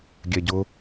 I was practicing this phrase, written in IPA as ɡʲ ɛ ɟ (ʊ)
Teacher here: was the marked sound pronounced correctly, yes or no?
yes